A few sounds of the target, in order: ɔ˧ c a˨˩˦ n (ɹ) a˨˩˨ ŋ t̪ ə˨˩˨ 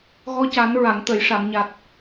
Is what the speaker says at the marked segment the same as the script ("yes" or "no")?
yes